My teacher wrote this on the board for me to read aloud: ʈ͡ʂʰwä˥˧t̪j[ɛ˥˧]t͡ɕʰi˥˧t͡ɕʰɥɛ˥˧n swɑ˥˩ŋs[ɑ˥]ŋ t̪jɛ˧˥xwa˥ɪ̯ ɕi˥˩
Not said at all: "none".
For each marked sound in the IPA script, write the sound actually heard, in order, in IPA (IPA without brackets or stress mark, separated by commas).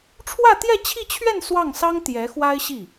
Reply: ɛ˥˧, ɑ˥